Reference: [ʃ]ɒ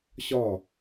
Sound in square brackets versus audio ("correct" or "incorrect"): incorrect